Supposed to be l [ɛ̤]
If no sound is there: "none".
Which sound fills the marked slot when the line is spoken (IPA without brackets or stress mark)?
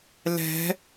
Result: ɛ̤